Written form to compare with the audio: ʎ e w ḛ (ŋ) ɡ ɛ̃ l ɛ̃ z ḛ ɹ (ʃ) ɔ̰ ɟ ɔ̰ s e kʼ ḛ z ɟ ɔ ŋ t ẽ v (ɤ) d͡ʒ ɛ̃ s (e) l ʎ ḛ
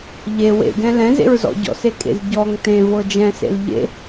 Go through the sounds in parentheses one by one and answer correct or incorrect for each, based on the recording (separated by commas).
incorrect, incorrect, correct, incorrect